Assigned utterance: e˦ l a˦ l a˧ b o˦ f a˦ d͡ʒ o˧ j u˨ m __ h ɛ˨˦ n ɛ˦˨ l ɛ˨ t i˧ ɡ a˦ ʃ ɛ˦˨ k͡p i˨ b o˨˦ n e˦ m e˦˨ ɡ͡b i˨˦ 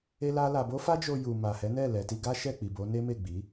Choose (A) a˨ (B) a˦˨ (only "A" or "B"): A